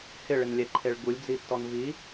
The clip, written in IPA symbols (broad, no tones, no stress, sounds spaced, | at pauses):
h ɪ ɭ ɪ n lʲ ɛ ǃʰ e ɭ ɡ u lʲ d͡z i tː ɔ n v i